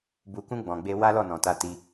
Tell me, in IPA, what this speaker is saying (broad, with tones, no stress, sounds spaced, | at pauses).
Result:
b u˨ k ũ˧ ɡ͡b ɔ̃˨ ɡ͡b e˧ w a˦ l ɔ˦˨ n ɔ̃˨ t a˧ t i˧